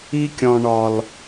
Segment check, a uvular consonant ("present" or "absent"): absent